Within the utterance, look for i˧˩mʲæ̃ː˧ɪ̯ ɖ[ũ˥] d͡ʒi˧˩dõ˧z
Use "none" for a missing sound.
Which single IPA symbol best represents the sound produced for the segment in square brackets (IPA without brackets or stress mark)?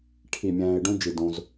ũ˥